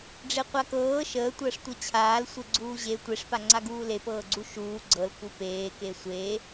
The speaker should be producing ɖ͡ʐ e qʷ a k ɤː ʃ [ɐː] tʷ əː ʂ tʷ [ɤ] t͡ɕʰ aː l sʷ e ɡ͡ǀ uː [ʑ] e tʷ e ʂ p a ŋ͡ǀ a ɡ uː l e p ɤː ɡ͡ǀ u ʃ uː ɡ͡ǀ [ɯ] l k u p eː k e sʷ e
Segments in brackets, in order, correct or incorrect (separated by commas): incorrect, correct, correct, incorrect